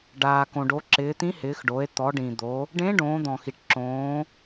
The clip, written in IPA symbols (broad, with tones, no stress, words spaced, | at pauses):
ɖaː˩kõ˩ɖo˩˧ǁɪː˩˧ t̪ĩ˧˥hɪː˩˧xɖo˩˧e̯ t̪ɔ˩˧ɖĩ˩d̪o˩˧ | ɖẽ˧˥ ɖõː˩˧d̪ɔ̃˩xi˩ʈ ǁõː˩˧